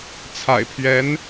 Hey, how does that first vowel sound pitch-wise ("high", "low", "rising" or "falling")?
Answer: low